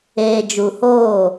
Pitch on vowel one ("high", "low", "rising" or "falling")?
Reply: low